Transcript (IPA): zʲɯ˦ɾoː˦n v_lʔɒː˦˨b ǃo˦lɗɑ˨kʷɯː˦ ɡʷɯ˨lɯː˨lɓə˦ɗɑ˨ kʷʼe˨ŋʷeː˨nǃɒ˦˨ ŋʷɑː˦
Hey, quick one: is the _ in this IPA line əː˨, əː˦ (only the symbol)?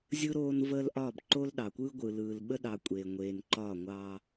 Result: əː˦